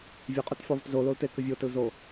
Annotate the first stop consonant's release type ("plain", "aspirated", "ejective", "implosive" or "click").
ejective